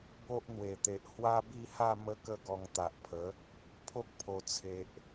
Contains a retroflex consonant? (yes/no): no